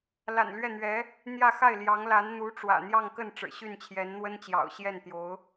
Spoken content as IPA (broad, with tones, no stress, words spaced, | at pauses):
la̰˨˩nlɥɛ˥˩n̪ɥɛ˧˥ | n̪jä˥˧ xa˥˩ɪ̯ljɑ˧˥ŋla˧˥n n̪u˧˥ʈ͡ʂwä̰˨˩n̪jɑ˥˧ŋkə˥˩n ʈ͡ʂɻ̩˨˩ɕy˥˩nt͡ɕʰjɛ˧˥n n̪wə˥nt͡ɕjɑ̰˨˩ʊ̯ ɕjɛ˥˩nt̪jo˧˥ʊ̯